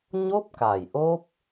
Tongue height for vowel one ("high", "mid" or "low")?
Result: mid